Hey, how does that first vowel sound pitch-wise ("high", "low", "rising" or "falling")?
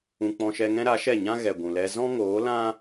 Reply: low